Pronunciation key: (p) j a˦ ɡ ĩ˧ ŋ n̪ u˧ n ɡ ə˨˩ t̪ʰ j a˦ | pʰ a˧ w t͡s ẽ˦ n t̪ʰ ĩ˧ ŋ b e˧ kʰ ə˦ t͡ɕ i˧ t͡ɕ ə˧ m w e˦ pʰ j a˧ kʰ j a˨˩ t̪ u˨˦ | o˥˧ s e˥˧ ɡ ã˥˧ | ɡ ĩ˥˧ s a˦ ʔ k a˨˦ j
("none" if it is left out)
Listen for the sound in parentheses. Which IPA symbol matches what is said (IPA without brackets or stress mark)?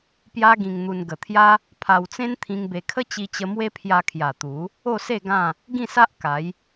p